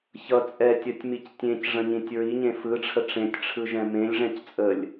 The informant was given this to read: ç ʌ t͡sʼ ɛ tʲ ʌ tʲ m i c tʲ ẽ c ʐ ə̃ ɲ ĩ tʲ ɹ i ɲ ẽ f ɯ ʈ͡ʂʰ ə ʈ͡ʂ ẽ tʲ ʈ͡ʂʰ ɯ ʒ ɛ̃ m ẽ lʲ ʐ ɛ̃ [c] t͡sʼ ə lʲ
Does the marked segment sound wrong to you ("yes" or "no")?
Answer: no